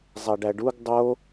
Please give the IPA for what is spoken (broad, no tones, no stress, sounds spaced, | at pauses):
zˤ æ ɖ æ ɖ u ɡ dˤ o